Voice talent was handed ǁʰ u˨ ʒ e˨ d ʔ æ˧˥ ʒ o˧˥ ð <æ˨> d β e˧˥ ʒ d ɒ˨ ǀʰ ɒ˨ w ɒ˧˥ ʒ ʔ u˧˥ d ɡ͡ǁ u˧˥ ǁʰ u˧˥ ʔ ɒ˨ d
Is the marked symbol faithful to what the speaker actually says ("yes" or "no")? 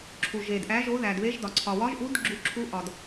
yes